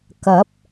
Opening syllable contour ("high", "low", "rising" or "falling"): rising